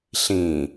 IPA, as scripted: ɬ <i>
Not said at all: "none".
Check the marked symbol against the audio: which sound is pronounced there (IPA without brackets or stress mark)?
ĩ